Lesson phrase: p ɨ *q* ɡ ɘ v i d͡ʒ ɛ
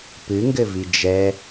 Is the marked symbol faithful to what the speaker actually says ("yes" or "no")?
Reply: no